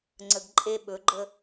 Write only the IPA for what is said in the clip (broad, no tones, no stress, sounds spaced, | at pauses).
ŋ͡ǀ ə ɡ ǃʼ e ɓ ɵ ɡ͡ǃ ə